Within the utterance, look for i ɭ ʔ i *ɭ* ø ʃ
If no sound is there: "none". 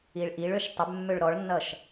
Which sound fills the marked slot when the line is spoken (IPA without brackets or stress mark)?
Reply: ɭ